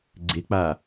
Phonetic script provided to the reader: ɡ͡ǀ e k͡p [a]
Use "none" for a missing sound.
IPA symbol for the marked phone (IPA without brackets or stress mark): a